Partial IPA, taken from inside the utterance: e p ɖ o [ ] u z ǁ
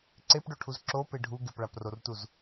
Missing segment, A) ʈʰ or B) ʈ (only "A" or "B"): A